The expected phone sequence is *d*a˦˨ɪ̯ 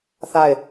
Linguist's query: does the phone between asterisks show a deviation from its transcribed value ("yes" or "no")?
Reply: yes